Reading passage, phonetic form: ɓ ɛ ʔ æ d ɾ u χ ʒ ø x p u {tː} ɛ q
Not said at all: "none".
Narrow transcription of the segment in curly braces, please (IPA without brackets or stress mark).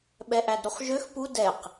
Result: d